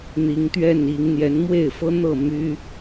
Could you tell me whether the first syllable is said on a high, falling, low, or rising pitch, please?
rising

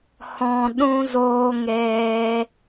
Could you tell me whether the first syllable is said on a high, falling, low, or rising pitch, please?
low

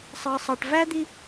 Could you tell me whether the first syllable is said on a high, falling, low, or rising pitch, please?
high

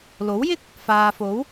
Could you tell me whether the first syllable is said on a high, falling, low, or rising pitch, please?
rising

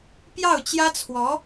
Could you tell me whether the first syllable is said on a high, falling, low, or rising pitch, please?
falling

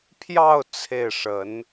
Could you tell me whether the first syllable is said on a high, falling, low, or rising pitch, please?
falling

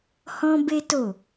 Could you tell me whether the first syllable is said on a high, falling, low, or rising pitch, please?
high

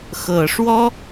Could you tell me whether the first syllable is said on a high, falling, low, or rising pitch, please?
low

